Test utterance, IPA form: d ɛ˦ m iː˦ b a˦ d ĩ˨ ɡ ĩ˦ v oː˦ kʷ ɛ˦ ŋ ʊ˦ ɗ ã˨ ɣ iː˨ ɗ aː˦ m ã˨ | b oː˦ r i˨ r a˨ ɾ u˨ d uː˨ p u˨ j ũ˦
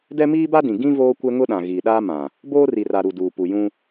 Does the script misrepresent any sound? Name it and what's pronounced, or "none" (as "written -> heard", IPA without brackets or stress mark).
none